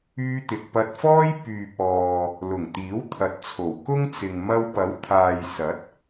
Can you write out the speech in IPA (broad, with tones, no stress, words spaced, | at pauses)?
yː˧t̪ɪ˨k̚pɐ˧t̚fɔː˥j pyː˨p̚ ɔː˨ | lʊ˨˩ŋt̪iː˨˥wt̪ʰɐ˨t̚t͡sʰo˨˩w kʊ˥ŋt͡sɪ˨ŋ mɐ˧wpɐ˨˥w t̪ʰaː˨jsɐ˨˥t̚